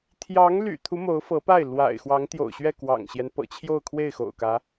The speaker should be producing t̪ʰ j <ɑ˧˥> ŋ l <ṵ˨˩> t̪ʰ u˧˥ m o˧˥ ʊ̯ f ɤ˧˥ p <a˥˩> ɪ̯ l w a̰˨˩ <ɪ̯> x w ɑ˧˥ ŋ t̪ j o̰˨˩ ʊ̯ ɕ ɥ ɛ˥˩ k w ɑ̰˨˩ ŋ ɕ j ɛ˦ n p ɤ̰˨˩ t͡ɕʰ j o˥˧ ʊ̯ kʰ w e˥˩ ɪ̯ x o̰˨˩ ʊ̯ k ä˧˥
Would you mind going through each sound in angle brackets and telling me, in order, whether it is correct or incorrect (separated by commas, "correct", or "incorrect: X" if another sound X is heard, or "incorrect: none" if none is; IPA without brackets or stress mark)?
correct, incorrect: y̰˨˩, correct, correct